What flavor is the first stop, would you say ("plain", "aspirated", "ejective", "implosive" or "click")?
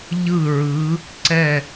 click